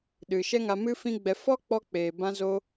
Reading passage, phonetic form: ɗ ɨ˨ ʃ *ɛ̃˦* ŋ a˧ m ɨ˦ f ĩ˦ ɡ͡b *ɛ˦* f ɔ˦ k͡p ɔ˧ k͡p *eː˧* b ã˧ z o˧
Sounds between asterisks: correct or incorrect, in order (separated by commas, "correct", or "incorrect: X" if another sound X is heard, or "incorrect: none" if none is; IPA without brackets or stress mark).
incorrect: ɛ˦, incorrect: ɛ˧, incorrect: eː˨